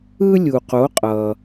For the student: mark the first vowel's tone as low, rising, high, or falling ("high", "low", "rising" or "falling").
high